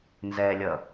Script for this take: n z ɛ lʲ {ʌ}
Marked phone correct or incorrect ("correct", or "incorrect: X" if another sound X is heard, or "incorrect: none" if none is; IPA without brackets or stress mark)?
correct